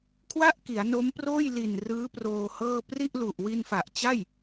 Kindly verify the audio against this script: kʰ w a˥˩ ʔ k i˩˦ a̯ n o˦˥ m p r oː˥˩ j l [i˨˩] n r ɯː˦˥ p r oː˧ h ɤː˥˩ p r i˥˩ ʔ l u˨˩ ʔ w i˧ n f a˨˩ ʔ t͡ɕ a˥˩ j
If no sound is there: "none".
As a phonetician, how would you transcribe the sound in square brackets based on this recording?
i˨˩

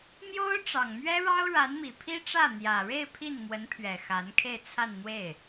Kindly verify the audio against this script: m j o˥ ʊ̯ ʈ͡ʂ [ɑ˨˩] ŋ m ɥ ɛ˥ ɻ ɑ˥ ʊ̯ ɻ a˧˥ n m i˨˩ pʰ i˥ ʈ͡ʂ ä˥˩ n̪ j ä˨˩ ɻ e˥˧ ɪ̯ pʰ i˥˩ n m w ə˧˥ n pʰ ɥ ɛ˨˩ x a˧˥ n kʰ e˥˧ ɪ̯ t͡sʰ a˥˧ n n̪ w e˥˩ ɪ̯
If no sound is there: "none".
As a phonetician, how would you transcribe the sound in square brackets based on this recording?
ɑ˨˩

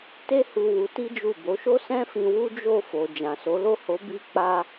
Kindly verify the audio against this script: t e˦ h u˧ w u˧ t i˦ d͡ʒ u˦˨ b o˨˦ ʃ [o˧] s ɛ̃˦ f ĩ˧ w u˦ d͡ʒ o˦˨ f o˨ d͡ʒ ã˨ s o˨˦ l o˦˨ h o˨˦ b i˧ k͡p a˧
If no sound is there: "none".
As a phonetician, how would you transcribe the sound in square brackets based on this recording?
o˦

